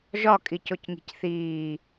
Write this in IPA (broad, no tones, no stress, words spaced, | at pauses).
ʒɒ kʼicocŋi̤cθiː